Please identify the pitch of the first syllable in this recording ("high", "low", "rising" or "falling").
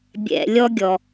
low